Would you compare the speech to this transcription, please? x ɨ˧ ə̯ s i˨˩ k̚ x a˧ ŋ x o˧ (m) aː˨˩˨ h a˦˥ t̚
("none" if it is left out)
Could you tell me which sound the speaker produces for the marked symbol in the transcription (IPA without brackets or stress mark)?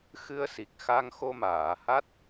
m